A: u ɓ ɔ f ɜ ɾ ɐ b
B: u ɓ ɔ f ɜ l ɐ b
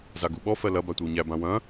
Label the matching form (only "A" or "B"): B